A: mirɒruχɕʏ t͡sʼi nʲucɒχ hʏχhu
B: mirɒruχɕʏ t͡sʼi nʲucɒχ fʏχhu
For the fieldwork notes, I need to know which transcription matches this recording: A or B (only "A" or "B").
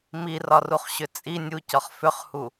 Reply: B